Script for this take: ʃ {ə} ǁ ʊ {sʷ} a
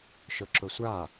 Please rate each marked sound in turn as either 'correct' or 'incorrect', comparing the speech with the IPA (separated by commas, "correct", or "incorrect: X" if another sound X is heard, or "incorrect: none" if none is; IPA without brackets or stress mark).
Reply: incorrect: ʊ, correct